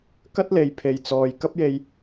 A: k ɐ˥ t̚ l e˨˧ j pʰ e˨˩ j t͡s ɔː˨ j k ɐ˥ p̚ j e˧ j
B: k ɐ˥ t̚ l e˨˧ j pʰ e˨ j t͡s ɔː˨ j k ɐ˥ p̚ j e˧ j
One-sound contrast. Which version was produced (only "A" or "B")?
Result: B